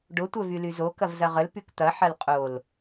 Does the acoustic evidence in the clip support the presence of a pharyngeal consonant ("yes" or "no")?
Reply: yes